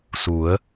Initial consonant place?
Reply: alveolar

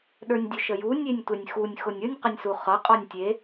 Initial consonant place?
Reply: alveolar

